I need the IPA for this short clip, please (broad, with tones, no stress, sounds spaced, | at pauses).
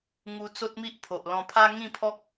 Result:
ŋ u˧ t͡s o˦ t̚ m i˦ ʔ pʰ o˨ ʔ l ɔ̃˧ pʰ a˦ ŋ ĩ˥˧ pʰ ɔ˦ k̚